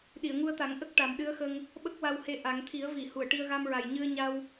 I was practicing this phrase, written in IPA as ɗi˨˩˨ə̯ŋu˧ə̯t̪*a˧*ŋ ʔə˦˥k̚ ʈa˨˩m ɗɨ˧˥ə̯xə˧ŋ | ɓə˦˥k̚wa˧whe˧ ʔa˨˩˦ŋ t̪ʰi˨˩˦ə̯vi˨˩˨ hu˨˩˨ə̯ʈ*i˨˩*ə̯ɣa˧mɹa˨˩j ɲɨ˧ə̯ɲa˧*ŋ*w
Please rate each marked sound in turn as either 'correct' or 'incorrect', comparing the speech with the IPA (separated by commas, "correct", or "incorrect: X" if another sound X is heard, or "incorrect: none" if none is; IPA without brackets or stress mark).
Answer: incorrect: a˨˩˦, incorrect: i˧, incorrect: none